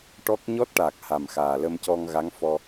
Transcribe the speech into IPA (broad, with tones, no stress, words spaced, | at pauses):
ʈɔ˦˥k̚ ɲɔ˦˥t̚ʈa˨˩k̚ ha˨˩mxaː˨˩ lə˧mcɔ˧ŋɣa˧˥ŋfɔ˧